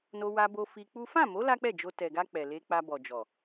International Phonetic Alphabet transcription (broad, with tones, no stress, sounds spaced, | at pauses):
n o˧ w a˧ b o˧ f i˧ k͡p u˦ f ã˦˨ m o˨˦ l a˦ k͡p ɛ˦˨ d͡ʒ o˧ t ɛ˨ ɡ a˧ k͡p ɛ˨ l e˧ k͡p a˧ b ɔ˨ d͡ʒ ɔ˨